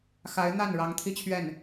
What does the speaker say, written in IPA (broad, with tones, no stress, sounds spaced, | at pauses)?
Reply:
x a˧˥ ɪ̯ n̪ a˥˩ n ɻ ɑ˧˥ ŋ t̪ʰ i˥˧ t͡ɕʰ ɥ ɛ˥˩ n